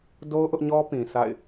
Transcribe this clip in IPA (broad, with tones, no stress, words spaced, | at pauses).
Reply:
do˦ʊ̯ ʔʊ˦ʔɲɔ˦pĩ˨ sa̰˦˨ɪ̯